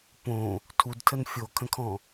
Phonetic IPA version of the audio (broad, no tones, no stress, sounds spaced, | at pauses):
p õ | tʰ u d tʰ ə n fʲ o kʰ ə̃ kʰ ɔ̃